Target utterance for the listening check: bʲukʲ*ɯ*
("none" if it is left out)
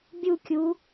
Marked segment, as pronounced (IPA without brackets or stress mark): u